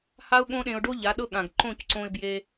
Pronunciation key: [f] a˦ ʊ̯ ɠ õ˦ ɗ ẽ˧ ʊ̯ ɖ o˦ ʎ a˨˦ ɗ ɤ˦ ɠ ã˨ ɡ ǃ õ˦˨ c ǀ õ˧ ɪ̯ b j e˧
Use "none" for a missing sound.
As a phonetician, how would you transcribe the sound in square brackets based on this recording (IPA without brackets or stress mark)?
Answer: h